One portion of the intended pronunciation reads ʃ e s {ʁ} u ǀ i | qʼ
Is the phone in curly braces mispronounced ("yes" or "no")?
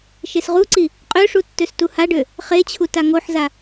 no